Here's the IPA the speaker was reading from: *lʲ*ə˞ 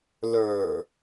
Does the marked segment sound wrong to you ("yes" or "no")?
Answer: yes